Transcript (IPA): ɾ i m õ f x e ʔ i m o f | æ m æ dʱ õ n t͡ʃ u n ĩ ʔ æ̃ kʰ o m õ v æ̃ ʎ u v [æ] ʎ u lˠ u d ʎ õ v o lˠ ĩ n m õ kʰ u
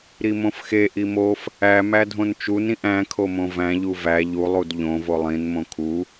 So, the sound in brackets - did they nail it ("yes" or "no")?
yes